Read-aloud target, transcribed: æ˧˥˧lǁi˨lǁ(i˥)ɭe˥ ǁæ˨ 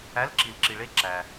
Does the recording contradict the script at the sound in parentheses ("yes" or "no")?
yes